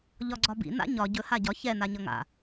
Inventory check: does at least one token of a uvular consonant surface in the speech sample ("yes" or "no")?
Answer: no